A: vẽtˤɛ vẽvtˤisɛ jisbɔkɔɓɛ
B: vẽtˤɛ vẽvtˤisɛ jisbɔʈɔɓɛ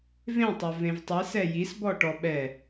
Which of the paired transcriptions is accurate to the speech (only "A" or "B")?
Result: B